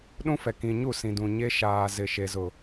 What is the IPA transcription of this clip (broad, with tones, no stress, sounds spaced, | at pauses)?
ɗ ũ˦ f ɛ˨ k ĩ˨ ɲ u˦˨ s ĩ˨ d ũ˨ ɲ e˦ ʃ aː˨ z ɪ˨ ʃ e˨ z ʊ˨